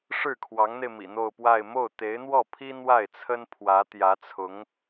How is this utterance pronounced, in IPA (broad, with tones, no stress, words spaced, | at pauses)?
ʂɻ̩˥˩kʰwɑ˧˥ŋn̪e˧ɪ̯ mḭ˨˩n̪o˥˧ʊ̯pwa˥˧ɪ̯ mo˥˩ʊ̯t̪e˧˥ɪ̯n̪wɔ˥˩pʰi˥ n̪wa˥˩ɪ̯t͡sʰə˥npʰwä˧˥ t̪jä˧˥t͡sʰʊ˧˥ŋ